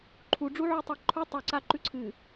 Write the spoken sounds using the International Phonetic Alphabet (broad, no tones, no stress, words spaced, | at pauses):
ǃʰu ɖ͡ʐuʕutˤaǃʰu tˤu ǀaǃʉǀʰɨ